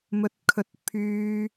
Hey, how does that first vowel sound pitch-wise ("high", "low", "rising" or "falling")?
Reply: low